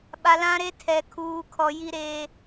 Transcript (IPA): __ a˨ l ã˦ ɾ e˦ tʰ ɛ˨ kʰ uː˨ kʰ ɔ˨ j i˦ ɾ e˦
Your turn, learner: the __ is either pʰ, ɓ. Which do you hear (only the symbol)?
ɓ